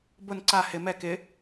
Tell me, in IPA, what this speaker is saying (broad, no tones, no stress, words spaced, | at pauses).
bʊn ǀa hɪ mɛ kɪ